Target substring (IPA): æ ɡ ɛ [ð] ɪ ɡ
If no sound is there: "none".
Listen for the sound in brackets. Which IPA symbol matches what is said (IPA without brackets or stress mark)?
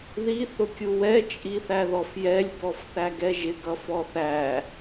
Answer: ʒ